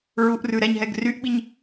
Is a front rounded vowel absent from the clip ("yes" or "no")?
no